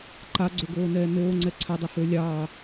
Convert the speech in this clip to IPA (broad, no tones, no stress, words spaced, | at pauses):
ǃaɡ͡ǀøɡoːnɛː noːŋ͡ǀɛ ǀʰadˤohøː lʲɑː